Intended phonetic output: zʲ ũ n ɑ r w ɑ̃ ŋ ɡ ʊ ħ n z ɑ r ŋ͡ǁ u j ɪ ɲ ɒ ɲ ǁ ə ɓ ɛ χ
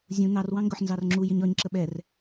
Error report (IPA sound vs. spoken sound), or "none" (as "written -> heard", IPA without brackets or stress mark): χ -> r